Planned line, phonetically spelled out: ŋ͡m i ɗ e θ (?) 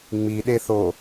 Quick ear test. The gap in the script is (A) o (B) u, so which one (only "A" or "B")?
A